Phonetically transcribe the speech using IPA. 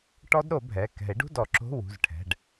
ʈ ɔ˦˥ d ɾ o˨˩˦ bʱ ɛ˩˧˩ k ɛ̤˨˩˦ e̯ ɖ ṳ˧˥˧ d ɔ˨˩˦ ǁ o̤˧˥˧ w ṳ˩˧˩ z ʈʰ ɛ̤˩˧˩ ɖ

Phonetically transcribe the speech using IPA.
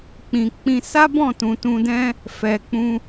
k͡p ĩ˨ k͡p ĩ˧ s a˦ b ɔ̃˦˨ t ũ˨ t ũ˧ d ɛ̃˦ | f ɛ˨ k͡p ũ˧

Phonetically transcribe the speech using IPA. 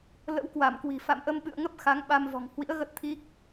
l ə̰˧˥ w k w a˧˩ m k w i̤˨˩ f a̰˧˨ m ʔ ə˧ m ɓ ɨ̰˧˨ ə̯ ŋ ə˦˥ p̚ x a˨˦ ŋ ɓ a˧ m v ɔ̤˨˩ ŋ h w ḭ˧˥ ə̯ ɣ ə˦˥ t̚ t̪ʰ i˦˥ k̚

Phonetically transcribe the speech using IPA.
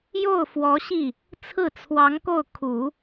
j o˥˩ ʊ̯ f w ɔ˧˥ ɕ i˥˩ | t͡sʰ ɹ̩˥˩ t͡sʰ w ɑ˧˥ ŋ k o˥˩ ʊ̯ kʰ u˨˩˦

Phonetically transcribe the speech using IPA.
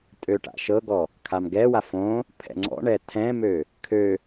tʼ ø ʈ a̰ ʃ ɤ ɡ ɔ | kʰ a m ɡ ɛ w a f õ | pʰ ɛ̰ ŋ͡ǀ ɔ̰ ɳ ɛ tʰ ɛ̃ m ø | kʰ ø

